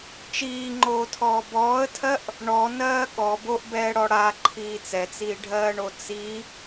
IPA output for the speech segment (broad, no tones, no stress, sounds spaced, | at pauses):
t͡ʃ iː ŋ͡ǃ oː tʰ ɔː b ɔː ə̯ tʰ ɜ ʔ | ɳ ɔ n ɜː ɠ ɔ b o ʔ b ɛː ɽ ɔ ɽ a ǃʰ iː t͡s ɛ t͡s iː ɖʱ ɜː ɳ o t͡s i